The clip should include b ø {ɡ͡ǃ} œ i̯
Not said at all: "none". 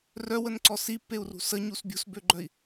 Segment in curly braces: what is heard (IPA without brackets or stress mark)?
ɡ͡ǃ